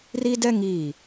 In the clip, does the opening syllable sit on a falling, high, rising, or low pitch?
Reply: high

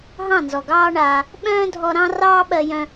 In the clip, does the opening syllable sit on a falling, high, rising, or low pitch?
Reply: falling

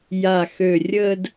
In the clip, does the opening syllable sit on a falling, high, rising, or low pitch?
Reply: low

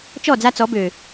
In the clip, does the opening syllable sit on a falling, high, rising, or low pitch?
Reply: falling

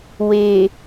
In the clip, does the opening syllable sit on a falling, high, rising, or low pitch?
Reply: low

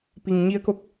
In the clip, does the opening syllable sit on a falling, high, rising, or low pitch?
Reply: low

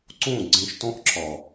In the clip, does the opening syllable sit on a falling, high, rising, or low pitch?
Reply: falling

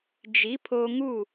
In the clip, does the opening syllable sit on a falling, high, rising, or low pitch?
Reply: rising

